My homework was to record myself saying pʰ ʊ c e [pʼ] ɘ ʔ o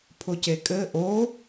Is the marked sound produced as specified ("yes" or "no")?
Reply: no